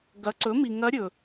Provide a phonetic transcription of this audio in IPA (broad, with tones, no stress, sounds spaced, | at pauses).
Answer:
ɡ ɐ˩˥ ǀ ɵ˩˥ m i˨ ŋ ɐ˧˥ ɾʲ ɵ˨